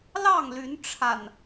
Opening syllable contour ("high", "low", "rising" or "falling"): falling